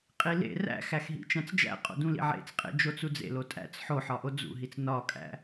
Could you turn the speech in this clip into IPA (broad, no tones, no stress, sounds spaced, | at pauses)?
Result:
qʼ i l ḛ r æ̰ x æ x ɦ ḭ t͡ʃ æ̃ t͡s d͡ʒ æ̰ qʼ o̰ d ũ l ḭ ʕ ḛ t͡s qʼ ḛ d͡ʒ o t͡s u d͡z ḛ l o tʼ æ̰ t͡s ħ o ħ ɒ ʔ o d͡z ṵ ɦ i t͡s n ɒ kʼ æ̰